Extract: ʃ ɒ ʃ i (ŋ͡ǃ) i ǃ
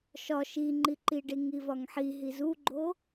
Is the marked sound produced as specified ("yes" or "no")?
yes